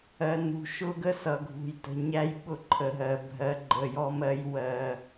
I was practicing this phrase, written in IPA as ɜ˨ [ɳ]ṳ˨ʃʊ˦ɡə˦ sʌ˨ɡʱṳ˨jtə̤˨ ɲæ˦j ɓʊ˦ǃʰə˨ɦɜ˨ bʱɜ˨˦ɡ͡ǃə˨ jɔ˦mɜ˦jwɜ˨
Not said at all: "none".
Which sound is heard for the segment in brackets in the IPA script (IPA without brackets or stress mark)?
n